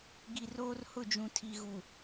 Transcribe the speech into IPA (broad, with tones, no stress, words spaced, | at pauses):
ɡi˨roː˦r hʊ˦˨d͡ʒũ˨ tʰi˨ɣu˨